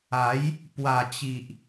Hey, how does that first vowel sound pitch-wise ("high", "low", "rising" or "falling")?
rising